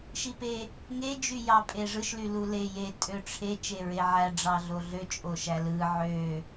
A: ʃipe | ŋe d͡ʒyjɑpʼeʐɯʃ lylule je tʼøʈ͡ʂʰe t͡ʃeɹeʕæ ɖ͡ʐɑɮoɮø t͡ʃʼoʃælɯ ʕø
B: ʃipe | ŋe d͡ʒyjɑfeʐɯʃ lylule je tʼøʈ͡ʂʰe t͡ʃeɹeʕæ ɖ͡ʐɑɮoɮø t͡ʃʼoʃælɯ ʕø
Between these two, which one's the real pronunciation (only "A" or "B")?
A